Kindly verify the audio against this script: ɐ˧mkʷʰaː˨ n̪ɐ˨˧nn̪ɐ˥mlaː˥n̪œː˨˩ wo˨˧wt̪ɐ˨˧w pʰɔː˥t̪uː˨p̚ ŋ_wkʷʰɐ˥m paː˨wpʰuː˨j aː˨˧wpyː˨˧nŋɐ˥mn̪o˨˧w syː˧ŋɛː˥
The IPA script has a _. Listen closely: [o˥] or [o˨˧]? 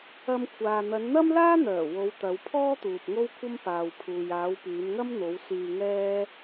o˥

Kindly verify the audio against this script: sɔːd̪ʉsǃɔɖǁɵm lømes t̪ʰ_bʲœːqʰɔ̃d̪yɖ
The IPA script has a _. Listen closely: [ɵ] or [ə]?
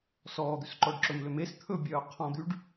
ɵ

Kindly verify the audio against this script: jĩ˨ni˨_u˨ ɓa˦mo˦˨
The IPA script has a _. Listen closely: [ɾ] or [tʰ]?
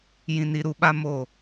ɾ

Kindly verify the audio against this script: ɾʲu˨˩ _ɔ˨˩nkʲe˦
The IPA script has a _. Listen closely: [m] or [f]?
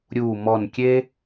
m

